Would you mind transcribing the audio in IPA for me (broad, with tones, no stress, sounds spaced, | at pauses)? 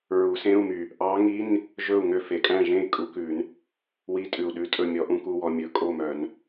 ɹ u˨˩˦ s ẽ˧˥˧ u̯ m y˨˩ | ʔ ɑ˧˥ ŋ i˧˥˧ n | ʒ ɵ˥˨ u̯ ŋ ø˥˨ f e˨˩ kʼ æ̃˥˨ ʒ ẽ˥˨ i̯ kʼ u˧˥ k ʉ˨˩˦ n | w i˧˥˧ tʼ ʉ˨˩ u̯ ɗ ʉ˧˥ tʼ ɵ˥˨ mʲ ɔ˧˥ ʔ ũ˧˥ k u˧˥˧ w ɔ˧ mʲ ɵ˨˩˦ kʼ o˥˨ m œ˨˩˦ n